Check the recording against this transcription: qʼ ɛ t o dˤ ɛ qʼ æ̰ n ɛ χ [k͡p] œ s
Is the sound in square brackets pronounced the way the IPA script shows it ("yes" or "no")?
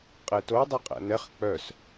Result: yes